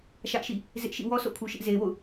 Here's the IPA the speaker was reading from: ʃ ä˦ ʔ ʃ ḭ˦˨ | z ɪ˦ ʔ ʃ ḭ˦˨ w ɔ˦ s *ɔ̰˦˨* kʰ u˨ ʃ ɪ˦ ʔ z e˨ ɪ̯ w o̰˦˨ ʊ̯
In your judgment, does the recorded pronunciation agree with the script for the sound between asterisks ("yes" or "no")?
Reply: no